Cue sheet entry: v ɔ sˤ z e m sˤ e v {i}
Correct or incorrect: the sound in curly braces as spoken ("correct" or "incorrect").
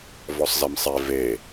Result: incorrect